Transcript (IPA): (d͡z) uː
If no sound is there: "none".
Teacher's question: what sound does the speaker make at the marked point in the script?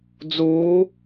d͡z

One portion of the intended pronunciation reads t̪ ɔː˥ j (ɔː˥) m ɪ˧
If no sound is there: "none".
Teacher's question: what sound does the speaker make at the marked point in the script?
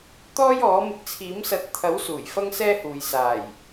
ɔː˨˥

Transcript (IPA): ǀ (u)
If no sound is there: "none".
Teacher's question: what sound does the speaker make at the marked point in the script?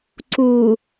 u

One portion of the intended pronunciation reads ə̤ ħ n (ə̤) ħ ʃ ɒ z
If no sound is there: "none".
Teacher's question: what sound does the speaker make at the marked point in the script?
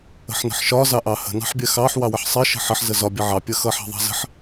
ə̤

